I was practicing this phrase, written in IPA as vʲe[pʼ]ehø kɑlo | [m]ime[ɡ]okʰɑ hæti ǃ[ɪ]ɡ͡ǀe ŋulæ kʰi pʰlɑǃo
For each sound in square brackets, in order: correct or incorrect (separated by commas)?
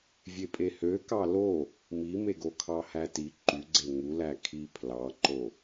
correct, correct, correct, incorrect